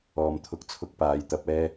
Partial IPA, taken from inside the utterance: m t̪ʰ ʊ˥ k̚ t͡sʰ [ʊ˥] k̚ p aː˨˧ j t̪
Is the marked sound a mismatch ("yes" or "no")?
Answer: no